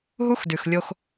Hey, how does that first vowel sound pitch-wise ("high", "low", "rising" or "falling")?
high